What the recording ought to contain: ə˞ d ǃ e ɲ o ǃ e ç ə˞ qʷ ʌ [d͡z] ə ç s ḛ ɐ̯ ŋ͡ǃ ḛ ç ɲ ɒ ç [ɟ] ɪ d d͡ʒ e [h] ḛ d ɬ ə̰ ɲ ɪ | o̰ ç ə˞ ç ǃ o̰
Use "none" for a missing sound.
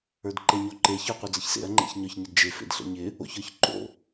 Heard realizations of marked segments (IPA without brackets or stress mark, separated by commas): d͡z, ɲ, f